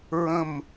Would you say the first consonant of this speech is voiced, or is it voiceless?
voiced